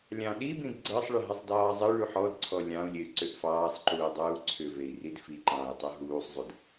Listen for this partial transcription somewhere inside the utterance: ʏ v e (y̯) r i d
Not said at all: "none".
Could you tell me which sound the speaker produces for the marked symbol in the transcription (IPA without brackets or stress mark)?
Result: i̯